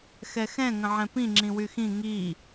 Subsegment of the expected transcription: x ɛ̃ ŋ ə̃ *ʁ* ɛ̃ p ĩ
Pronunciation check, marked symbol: incorrect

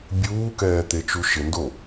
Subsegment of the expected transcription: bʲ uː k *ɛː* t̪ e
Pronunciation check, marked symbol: correct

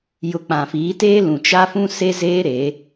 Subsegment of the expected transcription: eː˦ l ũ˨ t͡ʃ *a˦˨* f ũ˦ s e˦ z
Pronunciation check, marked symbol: incorrect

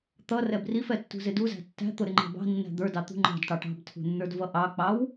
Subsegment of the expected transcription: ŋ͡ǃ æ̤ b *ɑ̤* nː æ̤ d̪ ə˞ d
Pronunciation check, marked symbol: correct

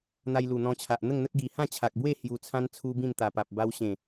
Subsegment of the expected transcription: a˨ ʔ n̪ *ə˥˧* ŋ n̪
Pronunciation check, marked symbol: correct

